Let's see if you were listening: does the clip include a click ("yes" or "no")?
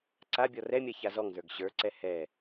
yes